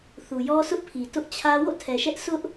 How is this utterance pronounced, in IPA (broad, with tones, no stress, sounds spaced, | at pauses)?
θ u˨ j ɔ˦ sʰ ʊ˦ ʔ pʰ i˨ t ʊ˦ ʔ t͡ɕʰ ä˦ w o̰˦˨ tʰ ɛ˨ ʃ ɛ˦ ʔ s ʊ˦ ʔ